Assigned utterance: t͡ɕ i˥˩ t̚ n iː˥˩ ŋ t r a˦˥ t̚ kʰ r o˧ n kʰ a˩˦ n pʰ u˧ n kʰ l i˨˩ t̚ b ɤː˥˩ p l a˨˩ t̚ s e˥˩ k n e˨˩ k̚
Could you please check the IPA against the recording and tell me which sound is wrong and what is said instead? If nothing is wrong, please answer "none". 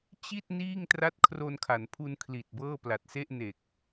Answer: k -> ʔ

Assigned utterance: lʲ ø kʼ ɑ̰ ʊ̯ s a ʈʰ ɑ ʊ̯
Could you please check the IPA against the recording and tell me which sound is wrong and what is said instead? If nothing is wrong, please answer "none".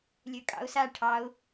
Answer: none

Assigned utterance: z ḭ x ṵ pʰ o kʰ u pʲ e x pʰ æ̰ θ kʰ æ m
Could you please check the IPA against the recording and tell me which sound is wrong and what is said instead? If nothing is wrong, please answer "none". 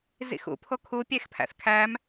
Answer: none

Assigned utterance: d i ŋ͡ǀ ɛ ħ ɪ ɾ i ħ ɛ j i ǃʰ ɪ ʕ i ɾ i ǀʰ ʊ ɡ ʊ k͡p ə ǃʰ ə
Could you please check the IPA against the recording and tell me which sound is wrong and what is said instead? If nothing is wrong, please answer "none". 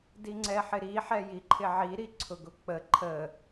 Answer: none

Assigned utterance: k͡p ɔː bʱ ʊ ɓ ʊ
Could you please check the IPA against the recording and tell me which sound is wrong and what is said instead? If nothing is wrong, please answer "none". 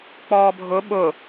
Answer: none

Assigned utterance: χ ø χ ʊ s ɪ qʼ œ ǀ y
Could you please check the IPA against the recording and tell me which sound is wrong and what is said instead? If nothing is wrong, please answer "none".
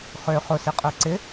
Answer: y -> ɪ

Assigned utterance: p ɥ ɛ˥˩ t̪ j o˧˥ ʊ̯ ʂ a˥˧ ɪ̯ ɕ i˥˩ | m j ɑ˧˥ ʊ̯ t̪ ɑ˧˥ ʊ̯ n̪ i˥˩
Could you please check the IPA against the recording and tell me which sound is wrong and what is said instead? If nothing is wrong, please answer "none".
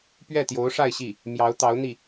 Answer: none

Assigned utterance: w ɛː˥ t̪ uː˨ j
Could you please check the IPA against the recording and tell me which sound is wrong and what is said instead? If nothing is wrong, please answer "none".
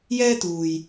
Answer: w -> j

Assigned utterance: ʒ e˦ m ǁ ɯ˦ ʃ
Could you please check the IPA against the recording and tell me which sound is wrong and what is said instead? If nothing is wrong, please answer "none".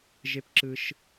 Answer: m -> p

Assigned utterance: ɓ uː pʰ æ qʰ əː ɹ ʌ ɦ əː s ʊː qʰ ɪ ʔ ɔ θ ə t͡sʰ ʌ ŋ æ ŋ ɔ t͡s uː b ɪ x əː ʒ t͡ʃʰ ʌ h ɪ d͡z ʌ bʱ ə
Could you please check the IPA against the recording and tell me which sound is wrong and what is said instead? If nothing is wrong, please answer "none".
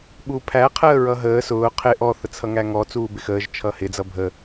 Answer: none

